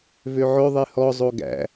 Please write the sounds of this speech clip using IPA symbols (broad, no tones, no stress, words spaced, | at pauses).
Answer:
vøʕɵ ðˤihɔ zˤoɡæ̰